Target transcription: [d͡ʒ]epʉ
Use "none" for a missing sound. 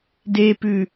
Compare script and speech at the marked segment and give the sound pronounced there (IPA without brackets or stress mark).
d